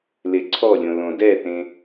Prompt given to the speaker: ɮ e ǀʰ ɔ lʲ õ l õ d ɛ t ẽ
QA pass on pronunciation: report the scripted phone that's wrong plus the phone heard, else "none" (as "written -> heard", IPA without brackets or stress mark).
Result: ɮ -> l